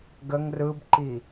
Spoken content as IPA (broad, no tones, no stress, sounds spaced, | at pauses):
ɡ ə ŋ r ɯ b ǃ i